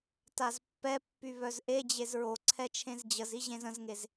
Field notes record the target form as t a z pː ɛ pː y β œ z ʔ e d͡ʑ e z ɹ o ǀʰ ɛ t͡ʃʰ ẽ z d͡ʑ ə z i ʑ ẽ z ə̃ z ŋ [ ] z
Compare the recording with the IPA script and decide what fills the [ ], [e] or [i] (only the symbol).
e